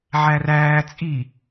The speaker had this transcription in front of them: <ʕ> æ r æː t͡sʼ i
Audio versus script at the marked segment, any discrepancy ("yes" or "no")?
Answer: no